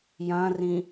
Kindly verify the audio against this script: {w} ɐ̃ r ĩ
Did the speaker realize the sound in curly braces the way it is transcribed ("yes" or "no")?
no